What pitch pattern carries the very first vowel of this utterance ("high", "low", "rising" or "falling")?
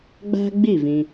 high